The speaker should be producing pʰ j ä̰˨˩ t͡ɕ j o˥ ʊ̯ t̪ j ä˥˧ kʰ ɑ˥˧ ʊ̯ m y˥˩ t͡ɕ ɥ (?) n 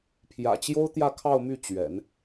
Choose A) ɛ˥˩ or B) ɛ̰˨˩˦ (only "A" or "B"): B